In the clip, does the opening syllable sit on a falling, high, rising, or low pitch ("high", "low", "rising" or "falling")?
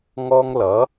high